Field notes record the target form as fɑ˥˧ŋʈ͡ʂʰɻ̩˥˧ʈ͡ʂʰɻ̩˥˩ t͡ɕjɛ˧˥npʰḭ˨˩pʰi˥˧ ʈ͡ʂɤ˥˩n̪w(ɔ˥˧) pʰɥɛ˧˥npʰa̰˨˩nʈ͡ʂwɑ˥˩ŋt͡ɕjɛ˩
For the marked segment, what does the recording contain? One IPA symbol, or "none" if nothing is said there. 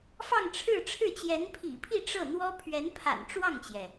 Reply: ɔ˥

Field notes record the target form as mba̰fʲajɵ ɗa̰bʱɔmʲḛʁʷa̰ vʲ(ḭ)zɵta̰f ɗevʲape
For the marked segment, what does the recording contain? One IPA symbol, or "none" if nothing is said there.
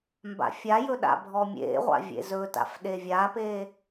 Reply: ḛ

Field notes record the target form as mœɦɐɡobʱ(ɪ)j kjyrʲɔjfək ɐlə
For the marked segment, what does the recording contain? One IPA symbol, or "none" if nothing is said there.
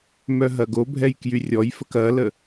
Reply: ɛ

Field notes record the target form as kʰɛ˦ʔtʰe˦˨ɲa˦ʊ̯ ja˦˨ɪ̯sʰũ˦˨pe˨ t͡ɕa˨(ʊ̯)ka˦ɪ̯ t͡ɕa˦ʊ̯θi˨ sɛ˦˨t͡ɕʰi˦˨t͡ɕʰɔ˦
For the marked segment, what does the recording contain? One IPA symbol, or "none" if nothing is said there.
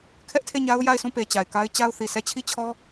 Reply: ɪ̯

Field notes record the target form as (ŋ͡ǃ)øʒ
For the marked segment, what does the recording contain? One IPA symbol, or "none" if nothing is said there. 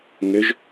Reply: ŋ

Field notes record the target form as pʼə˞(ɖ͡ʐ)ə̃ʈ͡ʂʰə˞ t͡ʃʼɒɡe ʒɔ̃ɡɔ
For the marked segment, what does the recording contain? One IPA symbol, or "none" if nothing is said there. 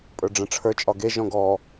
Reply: ɖ͡ʐ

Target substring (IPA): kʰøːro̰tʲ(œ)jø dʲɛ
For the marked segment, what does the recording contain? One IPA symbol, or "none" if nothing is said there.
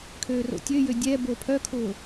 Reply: ø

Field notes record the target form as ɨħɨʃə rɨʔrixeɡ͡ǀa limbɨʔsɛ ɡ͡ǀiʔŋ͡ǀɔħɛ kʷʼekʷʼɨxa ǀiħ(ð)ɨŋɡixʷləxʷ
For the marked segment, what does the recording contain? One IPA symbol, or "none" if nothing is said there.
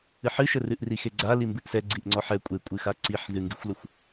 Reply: z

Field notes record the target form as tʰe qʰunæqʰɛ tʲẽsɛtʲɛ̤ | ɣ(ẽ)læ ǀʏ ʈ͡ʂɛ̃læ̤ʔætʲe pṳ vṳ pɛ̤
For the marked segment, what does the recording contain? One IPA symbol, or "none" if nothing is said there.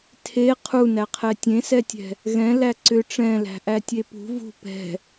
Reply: ɛ̃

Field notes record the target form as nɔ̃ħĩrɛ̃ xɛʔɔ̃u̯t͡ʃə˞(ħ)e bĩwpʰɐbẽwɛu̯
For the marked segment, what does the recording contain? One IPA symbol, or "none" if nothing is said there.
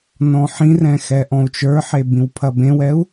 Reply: ħ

